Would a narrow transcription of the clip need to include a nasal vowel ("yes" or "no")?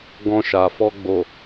yes